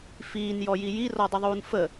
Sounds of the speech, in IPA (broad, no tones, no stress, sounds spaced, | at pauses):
f iː n j ɔ j i j i r ɔ dˤ ə ðˤ uː n f ə